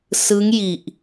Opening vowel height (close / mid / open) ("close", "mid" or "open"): close